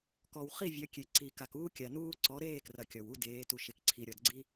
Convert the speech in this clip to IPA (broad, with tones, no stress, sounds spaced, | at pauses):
k ɔ˨ w χ i˦˨ vʲ ɐ˨˦ kʲ e˨ ǀ i˨ k a˨ k uː˦ kʲ a˨ n uː˦ ǀ ɔ˨˦ ɾ eː˦˨ k r ɐ˨ kʲ ɔ˨ w u˦ d eː˨˦ t u˨ ʃ e˨ k ǀʰ i˨ ɾʲ ɔ˨ d ɡ͡ǀ i˦